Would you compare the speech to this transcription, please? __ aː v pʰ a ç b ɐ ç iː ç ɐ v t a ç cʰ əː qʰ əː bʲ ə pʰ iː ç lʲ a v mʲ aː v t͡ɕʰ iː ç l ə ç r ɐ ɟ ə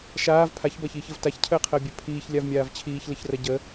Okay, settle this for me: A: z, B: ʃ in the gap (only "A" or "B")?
B